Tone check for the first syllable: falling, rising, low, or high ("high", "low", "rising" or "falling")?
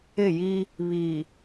falling